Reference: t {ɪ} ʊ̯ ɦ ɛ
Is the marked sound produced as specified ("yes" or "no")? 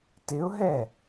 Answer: yes